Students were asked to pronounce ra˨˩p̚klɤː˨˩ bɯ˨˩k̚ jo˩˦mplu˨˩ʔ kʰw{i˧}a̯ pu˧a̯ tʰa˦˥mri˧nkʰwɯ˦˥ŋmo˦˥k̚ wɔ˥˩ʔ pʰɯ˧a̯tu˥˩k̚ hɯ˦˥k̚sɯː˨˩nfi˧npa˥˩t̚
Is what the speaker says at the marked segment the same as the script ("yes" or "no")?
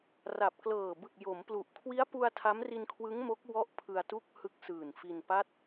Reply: no